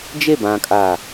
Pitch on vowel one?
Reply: falling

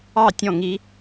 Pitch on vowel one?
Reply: falling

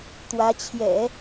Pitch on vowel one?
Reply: rising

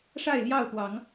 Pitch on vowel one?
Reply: falling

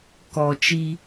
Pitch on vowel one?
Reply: low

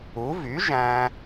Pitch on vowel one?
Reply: rising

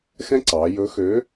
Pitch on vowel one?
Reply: high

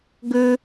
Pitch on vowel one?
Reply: high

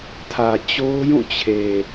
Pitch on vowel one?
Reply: low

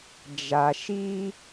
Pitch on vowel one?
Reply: low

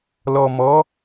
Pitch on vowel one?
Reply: low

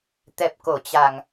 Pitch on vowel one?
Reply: low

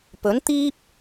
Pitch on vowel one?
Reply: rising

